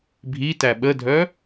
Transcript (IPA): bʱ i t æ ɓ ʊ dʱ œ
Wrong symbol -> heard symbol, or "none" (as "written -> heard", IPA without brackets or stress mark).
ʊ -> ə